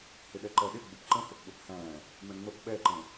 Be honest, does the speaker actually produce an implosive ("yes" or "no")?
yes